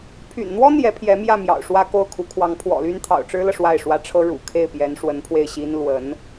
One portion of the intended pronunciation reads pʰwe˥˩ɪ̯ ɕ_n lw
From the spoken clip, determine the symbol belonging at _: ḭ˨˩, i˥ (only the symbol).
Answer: i˥